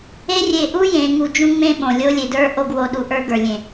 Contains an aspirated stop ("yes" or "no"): no